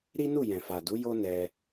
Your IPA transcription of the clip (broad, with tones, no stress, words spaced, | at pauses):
ɾi˦nu˦˨ jɛ̃˨fa˨du˨˦ jo˦nɛ˧